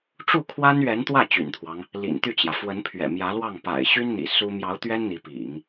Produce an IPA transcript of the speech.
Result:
ʈ͡ʂ u˥˩ kʰ w a˥ n ɥ ɛ˧˥ n t̪ w ä˥˩ t͡ɕ y̰˨˩ n t̪ʰ w ɑ˦ ŋ | l ḭ˨˩ n t̪ y˥˩ t͡ɕ j ä˩ f w ə˧˥ n pʰ ɥ ɛ̰˨˩ m j ä˧˥ l w ɑ˥˩ ŋ p a̰˨˩ ɪ̯ ɕ y˥ n n̪ ḭ˨˩ s u˥ m j ɑ˧˥ ʊ̯ t̪ ɥ ɛ˥ n n̪ i˧˥ p ḭ˨˩˦ ŋ

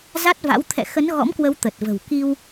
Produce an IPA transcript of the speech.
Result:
z a˦˥ t̚ v a̰˧˥ w t̪ʰ ɛ̰˧˨ x ə˨˦ n ɣ ɔ̰˧˥ m k w ə˨˦ w t̪ ə˨˩ t̚ v ə̤˨˩ w k i˧ w

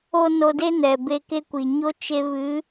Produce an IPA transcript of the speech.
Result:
o˦ n o˧ d e˦ n ɛ˨ b e˧ k e˦ kʷ i˨ ɲ o˦ t͡ʃ e˧ v ɨ˨˦

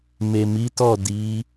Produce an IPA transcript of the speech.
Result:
m e˨ m i˨˦ t ɔ˦˨ d i˨˦

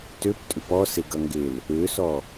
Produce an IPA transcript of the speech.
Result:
t ø p tʼ ʏ p ɔ s e ɡ ʌ ŋ ɡ e l | ø s ɔ

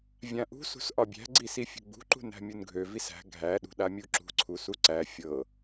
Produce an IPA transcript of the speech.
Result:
vʲ ã ʔ ṳ s ṳ s ʔ ɒ bʲ æ̤ ɡ͡ǀ i s i fʲ ṳ ɡ͡b ṳ ǃ ṳ n æ̤ mʲ u n ɡʱ ø v i s æ̤ ɡʱ æ ɗ ṳ ɗ a mʲ u ǁ ṳ ǀʰ u s u ǀ æ fʲ ɤ

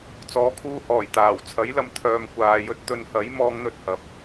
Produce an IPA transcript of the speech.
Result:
t͡s ɔː˨˥ kʰ uː˧ h ɔː˨˩ j t̪ aː˨˩ w t͡sʰ ɐ˨˥ j l ɐ˨ m t̪ʰ œː˨ m kʷ aː˨ j ɵ˧ t̚ t̪ ɵ˨˧ n h ɐ˨˥ j m ɔː˨˧ ŋ n̪ ɵ˨ t̚ h ɐ˨˥ p̚

